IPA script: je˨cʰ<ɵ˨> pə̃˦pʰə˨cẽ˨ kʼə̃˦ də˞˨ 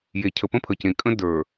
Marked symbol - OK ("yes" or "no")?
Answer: no